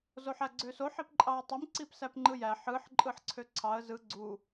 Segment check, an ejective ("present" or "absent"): present